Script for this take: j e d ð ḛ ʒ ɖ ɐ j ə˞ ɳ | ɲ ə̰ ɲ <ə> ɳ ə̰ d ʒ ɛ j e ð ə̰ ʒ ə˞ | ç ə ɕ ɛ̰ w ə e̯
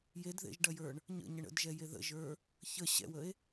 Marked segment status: correct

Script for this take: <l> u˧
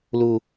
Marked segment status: correct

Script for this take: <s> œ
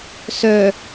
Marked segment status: correct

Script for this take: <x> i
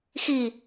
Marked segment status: correct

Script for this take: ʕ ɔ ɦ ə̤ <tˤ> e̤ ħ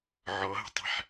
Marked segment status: correct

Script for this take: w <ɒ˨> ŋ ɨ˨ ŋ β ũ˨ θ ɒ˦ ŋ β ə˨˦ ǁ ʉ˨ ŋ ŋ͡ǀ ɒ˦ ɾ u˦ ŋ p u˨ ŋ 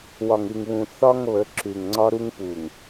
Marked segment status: correct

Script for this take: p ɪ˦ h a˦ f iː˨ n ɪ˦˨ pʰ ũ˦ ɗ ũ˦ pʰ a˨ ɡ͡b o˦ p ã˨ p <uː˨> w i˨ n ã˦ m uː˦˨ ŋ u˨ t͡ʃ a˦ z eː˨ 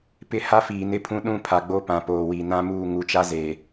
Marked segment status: incorrect: oː˨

